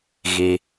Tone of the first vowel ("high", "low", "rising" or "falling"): high